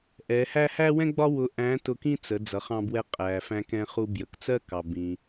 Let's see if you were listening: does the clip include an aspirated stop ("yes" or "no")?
no